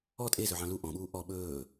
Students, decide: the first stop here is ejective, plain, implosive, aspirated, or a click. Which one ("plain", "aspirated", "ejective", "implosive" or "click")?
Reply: ejective